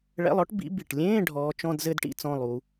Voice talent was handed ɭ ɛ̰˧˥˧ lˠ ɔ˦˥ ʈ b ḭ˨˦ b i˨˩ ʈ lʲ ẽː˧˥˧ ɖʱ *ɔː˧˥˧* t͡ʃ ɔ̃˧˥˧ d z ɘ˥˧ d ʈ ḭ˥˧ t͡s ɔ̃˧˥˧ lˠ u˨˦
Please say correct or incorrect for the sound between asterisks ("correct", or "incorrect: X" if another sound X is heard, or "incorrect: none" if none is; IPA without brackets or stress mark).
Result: incorrect: ɔː˨˦